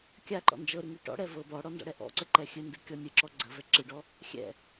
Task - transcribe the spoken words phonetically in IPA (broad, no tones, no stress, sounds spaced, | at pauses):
kʲ a ǃ ɔ̰ n d͡ʒ ɤ ɾ ɨ ŋ i ʈ ɔ̰ ɽ ɛ v ɤ b ɔ ɽ ɔ n d ɔ̰ ɽ ɛ ʔ ɔ̰ ǀ ə ǃ ɛ xʲ ɨ n d ɨ kʲ ɔ nʲ ɨ ǁ ɔ ɡ͡ǀ ə v ɛ ǁ ɨ ɖ ɔ | xʲ ɛ̰